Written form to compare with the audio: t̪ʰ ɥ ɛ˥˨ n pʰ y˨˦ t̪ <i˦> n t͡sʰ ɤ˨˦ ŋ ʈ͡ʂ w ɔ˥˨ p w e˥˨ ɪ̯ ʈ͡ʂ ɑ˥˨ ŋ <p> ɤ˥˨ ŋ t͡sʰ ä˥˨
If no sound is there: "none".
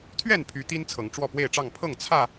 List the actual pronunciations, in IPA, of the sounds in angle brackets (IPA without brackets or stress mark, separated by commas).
i˦, pʰ